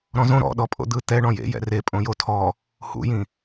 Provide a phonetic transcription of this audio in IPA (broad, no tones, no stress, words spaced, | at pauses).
ɾɔ̃zõ ɾɔ̰ ɗɔpʼo̰d̪ɯ t̪ɛ ɳɔ̃jḛ jɛ̰re pʼõjotʰɔ | hṵjĩ